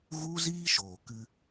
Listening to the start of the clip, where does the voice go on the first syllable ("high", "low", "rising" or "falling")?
high